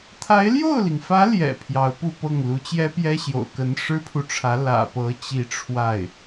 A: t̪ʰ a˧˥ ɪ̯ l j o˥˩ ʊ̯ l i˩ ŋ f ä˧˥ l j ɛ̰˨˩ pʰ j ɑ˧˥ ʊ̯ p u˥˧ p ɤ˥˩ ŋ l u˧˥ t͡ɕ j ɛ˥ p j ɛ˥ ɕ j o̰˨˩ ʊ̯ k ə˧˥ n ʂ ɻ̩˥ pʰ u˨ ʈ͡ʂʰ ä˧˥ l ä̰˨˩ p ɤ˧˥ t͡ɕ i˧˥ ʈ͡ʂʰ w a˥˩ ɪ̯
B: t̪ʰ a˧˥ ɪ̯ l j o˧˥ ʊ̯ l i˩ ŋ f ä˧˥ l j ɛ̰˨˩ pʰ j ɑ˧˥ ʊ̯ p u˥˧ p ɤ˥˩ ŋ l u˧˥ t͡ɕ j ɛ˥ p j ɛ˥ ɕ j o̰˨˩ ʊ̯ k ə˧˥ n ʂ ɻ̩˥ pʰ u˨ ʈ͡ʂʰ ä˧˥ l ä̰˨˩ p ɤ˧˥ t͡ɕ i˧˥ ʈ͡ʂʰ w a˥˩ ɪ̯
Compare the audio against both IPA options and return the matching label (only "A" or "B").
A